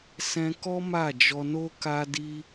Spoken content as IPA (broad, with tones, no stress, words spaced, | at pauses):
sɛ̃˧kɔ˦ ma˦˨d͡ʒɔ˧no˦ ka˦di˦